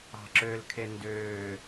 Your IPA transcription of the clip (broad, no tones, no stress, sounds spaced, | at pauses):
ɑ̤ ǁ ø l kʰ e n d øː